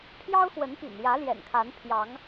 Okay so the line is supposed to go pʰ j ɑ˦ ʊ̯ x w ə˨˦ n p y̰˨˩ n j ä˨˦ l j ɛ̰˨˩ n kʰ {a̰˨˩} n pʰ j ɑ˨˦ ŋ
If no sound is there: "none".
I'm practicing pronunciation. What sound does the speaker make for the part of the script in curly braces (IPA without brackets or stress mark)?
a˨˦